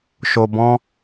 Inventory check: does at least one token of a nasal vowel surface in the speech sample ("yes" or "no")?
yes